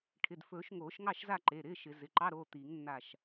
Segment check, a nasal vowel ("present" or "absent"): absent